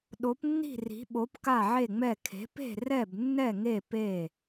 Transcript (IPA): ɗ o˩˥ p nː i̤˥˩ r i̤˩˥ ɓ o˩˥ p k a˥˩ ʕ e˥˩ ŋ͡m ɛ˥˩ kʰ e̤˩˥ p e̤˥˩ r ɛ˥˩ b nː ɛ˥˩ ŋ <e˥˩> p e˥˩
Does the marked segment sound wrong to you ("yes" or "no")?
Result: no